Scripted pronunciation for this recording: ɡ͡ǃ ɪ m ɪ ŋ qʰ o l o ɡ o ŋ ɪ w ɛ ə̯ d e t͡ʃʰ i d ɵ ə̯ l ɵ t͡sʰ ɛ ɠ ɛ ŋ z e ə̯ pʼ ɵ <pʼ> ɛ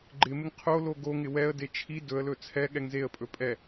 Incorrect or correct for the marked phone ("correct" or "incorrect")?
correct